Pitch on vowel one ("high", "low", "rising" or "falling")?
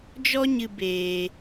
high